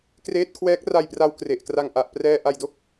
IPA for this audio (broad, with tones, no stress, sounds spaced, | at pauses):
k r eː˦˥ t̚ kʰ w ɛː˦˥ k̚ r a˧ j p r a˧ w k r e˨˩ ʔ k r a˧ ŋ ʔ a˨˩ ʔ p r ɛː˧ ʔ a˧ j d o˥˩ k̚